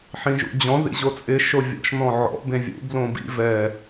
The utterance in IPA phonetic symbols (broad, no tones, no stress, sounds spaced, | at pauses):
ħ ĩ ʒ ṵ d͡ʑ ɔ̃ ð ḭ ʑ o t͡sʼ ɪ ʃ o vʲ ɔ̰ ʃ n ɔ̃ ʕ ɔ̰ b ẽ vʲ ṵ b l õ b ḭ v ɛ